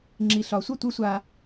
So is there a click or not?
yes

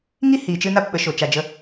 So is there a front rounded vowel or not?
no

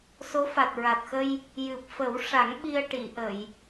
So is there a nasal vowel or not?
no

